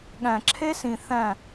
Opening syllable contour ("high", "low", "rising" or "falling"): low